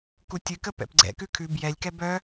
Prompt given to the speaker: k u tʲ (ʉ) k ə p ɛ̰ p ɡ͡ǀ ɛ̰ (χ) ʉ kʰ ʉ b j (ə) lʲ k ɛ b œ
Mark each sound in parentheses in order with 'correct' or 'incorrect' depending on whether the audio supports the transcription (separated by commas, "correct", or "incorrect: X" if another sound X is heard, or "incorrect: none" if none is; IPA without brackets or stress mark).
incorrect: ɨ, incorrect: k, incorrect: ɛ